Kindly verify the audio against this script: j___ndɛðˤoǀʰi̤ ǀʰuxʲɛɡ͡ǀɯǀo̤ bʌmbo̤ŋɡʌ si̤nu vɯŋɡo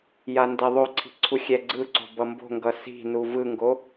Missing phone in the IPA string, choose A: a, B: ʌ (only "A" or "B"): A